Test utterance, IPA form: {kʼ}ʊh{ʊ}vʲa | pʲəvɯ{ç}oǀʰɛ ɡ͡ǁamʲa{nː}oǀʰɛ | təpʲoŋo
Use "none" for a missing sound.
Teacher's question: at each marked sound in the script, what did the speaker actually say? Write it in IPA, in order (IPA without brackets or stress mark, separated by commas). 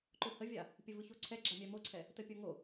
ǃ, ə, ç, m